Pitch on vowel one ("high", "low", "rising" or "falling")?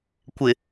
low